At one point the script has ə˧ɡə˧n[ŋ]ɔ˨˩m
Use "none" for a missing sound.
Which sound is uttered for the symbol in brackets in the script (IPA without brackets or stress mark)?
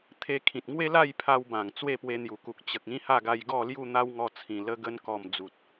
k